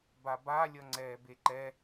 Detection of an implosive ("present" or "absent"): absent